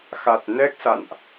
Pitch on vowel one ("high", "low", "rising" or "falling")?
low